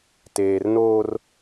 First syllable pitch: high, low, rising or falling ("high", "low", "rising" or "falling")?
low